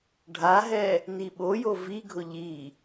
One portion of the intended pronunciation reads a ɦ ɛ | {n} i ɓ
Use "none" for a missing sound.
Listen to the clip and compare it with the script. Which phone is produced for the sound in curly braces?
n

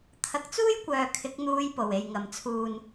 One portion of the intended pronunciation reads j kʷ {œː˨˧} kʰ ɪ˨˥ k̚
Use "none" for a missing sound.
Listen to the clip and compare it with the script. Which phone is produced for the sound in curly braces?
œː˨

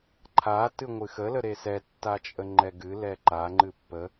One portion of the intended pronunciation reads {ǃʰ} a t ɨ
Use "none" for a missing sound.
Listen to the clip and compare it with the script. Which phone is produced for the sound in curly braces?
ǃʰ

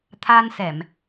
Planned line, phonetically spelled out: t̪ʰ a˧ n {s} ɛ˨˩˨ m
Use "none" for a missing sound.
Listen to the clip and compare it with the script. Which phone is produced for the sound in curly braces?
s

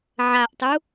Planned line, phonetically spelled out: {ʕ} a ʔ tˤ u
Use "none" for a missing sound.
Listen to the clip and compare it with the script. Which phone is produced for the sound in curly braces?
ʕ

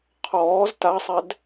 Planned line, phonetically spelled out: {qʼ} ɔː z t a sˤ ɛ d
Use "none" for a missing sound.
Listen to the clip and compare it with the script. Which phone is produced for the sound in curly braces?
qʰ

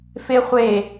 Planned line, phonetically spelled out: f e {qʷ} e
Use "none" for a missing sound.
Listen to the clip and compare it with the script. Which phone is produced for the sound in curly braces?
χʷ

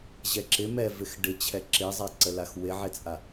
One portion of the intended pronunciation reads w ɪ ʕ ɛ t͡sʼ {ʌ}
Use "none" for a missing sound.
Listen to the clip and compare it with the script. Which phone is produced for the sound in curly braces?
a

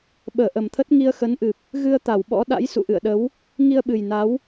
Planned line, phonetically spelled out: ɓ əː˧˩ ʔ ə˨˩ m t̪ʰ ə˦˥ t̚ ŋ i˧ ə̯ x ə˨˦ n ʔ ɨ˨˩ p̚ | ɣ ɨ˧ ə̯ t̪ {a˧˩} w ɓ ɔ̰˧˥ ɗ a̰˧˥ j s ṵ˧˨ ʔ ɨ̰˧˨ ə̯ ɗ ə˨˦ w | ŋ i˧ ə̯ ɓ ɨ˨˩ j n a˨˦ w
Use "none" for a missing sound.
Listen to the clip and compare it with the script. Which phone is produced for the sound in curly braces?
a˧˩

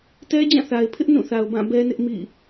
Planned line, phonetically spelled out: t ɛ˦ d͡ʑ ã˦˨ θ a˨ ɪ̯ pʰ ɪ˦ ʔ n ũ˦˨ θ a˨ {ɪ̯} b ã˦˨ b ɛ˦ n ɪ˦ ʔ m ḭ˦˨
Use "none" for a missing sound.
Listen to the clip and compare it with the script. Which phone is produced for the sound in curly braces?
ʊ̯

